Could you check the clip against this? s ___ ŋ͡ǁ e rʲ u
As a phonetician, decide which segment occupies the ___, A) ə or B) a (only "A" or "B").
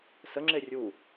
A